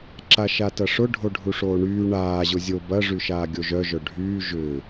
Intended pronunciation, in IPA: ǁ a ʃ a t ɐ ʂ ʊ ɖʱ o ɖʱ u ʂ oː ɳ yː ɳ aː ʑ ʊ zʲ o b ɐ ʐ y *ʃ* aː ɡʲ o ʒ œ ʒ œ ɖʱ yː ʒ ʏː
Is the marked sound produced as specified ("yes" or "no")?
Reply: yes